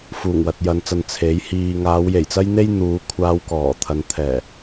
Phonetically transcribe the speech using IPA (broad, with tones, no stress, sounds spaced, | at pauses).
f uː˨˩ ŋ w ɐ˨ t̚ j ɐ˨˧ n t͡s ɐ˨ n t͡sʰ e˨˥ j h iː˧ ŋ aː˨˧ w j e˨˩ j t͡s ɐ˥ j n̪ e˥ j n̪ uː˨˧ kʷʰ aː˧ w k ɔː˨˩ t̪ʰ ɐ˨ n t̪ʰ ɛː˨˩